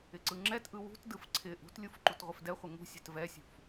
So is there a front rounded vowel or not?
no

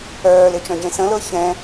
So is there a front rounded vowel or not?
yes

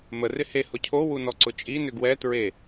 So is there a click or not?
yes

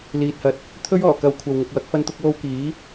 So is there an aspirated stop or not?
yes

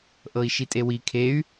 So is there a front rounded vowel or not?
yes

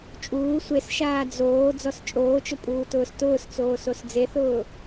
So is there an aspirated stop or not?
no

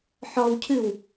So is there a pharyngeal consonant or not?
yes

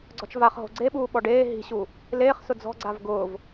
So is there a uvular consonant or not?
yes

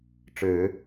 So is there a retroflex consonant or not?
yes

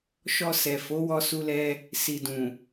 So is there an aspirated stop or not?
no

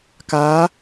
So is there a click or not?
no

